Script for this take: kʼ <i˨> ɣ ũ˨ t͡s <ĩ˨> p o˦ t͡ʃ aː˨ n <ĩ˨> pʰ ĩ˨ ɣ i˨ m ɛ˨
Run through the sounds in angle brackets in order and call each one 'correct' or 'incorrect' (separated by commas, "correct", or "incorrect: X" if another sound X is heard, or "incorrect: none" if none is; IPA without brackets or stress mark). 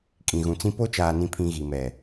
incorrect: ĩ˨, incorrect: ĩ˦, correct